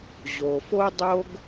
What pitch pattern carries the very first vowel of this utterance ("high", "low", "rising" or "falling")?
low